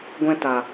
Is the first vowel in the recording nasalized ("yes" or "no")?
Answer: yes